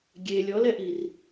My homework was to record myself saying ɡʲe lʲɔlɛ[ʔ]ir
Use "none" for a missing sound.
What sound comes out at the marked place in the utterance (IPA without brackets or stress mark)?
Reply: ʔ